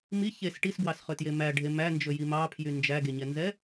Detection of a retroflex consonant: present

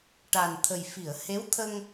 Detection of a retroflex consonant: present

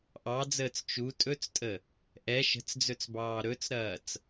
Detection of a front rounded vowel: absent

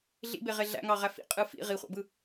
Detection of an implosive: absent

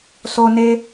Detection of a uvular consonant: absent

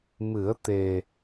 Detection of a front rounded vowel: absent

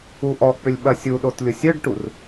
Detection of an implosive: present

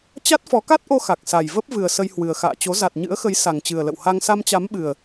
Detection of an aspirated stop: absent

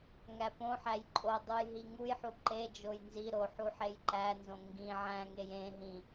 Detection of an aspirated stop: absent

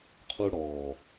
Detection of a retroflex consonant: present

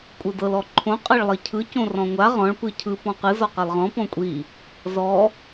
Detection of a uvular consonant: present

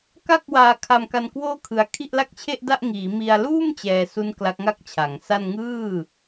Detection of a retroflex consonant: absent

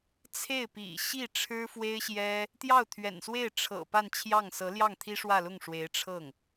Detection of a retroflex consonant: present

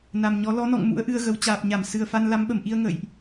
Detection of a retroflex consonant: absent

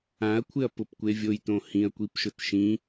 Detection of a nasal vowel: present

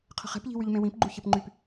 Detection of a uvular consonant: present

